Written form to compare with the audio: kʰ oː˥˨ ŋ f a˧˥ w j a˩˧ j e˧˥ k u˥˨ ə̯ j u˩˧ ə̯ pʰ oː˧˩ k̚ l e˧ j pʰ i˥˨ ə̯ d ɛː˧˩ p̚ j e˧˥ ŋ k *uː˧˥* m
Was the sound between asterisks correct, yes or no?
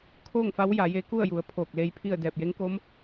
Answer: no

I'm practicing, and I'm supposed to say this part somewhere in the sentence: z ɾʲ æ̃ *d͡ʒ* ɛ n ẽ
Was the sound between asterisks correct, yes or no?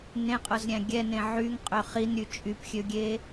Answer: no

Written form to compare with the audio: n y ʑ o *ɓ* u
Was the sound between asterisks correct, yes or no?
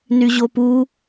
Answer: no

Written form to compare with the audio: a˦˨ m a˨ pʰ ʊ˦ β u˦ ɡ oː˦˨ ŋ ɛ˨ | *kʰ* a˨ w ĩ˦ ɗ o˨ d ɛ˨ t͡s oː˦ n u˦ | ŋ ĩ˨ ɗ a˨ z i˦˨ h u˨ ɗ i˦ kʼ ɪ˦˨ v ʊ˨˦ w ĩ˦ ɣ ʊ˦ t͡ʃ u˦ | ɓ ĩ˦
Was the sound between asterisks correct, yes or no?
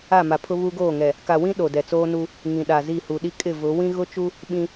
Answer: no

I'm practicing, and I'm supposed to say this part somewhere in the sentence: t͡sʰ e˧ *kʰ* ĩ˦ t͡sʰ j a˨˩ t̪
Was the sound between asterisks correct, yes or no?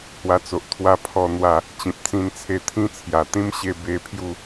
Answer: no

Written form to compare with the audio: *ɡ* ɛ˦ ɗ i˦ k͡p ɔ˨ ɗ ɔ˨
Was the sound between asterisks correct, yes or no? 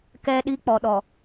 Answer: no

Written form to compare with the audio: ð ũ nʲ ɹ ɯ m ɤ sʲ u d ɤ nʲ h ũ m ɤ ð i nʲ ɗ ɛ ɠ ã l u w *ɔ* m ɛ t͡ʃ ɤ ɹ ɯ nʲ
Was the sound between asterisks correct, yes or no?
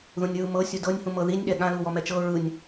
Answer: yes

